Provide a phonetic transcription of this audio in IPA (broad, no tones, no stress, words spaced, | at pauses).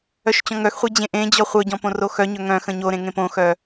œʃt͡ɕɔ̃ŋœxχʷe d͡ʑẽʔẽd͡ʑɔ χʷœɟɔ̃ põroxœɲœ ŋœ̃ xə̃ɲoɾẽ ŋẽpõxœ